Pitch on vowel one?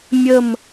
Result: falling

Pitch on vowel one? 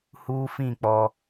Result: high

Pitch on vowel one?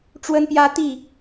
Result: high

